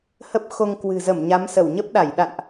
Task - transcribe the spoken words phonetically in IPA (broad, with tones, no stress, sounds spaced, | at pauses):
h ə˦˥ p̚ x o˧ ŋ k w ɨ̤˨˩ z ə˧˩ m ɲ a˨˦ m s ə˧˩ w ɲ ə˦˥ p̚ ɗ a˧˩ j ɗ a̰˧˨ n ʔ